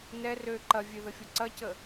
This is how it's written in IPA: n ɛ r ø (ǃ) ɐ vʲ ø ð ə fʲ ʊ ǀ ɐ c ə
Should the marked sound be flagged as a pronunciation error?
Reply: no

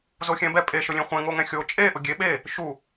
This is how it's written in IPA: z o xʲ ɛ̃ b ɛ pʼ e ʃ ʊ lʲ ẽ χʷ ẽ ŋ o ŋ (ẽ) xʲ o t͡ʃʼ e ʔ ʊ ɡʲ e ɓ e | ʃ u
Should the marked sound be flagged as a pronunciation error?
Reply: yes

